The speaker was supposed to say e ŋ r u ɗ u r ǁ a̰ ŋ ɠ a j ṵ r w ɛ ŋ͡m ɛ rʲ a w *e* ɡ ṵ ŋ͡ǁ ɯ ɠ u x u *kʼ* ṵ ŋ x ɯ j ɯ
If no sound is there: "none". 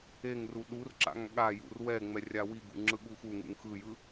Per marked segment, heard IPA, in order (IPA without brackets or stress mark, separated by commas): i, ŋ